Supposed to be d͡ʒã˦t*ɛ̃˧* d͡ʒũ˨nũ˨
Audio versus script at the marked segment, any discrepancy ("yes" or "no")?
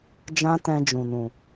no